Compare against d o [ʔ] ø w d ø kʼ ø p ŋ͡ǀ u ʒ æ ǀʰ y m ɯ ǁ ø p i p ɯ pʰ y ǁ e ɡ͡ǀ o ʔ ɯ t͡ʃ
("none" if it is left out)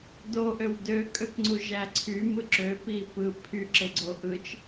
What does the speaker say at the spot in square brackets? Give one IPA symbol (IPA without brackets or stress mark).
ʔ